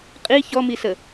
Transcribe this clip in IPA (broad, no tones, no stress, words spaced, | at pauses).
qʼi çɔmisə